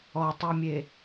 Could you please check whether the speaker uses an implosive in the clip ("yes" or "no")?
no